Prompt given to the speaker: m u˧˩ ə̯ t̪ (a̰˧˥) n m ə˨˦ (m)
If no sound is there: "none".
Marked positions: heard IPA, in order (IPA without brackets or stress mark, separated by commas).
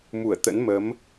ə̰˧˥, m